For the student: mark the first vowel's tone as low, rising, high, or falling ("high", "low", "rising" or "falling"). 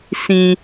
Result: low